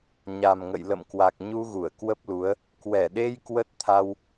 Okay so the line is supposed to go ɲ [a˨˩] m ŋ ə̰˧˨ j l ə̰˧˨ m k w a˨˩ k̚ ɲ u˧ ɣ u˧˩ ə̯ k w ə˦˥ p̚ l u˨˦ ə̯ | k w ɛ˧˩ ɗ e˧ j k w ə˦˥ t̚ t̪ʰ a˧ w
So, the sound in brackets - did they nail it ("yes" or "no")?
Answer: yes